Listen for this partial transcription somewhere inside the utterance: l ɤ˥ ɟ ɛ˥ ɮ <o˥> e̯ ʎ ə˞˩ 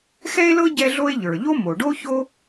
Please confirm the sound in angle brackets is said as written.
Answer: yes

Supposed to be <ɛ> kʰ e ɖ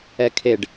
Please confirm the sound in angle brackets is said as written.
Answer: yes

